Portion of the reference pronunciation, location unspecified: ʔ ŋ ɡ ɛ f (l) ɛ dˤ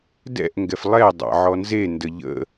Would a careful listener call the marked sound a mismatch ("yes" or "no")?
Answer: yes